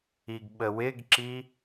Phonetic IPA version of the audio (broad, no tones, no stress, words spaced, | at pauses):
iɡɓəwɪɡǁi